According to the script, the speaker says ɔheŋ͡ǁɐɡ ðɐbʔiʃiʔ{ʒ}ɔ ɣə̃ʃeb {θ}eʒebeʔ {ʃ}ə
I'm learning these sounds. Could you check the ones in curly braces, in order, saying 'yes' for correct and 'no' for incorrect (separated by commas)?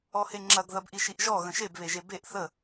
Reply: yes, no, no